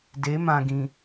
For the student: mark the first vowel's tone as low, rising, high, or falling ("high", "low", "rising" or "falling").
rising